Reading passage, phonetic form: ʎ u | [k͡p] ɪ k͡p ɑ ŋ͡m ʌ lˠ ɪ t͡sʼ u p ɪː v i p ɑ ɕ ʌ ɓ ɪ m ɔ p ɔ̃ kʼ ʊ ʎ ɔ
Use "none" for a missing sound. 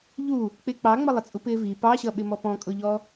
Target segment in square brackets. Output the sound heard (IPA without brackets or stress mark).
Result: k͡p